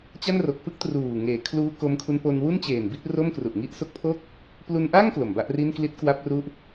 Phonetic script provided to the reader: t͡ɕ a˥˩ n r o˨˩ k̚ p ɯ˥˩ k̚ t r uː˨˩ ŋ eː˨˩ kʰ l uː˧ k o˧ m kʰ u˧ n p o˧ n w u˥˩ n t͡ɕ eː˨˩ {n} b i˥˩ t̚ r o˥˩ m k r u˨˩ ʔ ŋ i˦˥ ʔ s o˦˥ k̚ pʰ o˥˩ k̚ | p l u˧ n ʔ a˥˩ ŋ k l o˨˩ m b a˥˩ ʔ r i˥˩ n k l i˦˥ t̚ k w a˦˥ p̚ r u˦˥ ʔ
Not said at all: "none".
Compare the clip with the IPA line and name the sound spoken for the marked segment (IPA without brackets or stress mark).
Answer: n